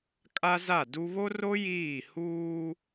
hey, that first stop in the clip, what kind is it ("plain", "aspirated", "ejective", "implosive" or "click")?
ejective